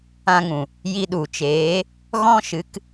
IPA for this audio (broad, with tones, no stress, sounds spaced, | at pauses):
ã˧ ŋ ũ˨ | j i˧ ɗ u˨ t͡ʃ eː˨˦ | ɣ ɔ̃˦ ʃ ɨ˨˦ k